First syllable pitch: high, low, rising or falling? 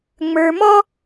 low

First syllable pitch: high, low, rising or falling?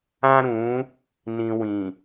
high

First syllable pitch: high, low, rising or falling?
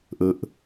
low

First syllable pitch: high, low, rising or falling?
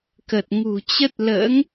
low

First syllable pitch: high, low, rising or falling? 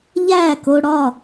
falling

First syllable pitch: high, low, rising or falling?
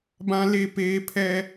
high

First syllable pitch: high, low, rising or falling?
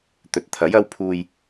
low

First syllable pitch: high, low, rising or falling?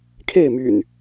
falling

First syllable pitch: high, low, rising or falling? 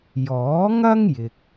rising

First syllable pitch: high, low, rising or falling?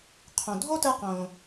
low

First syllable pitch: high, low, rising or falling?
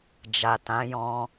low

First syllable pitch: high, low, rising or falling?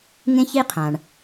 high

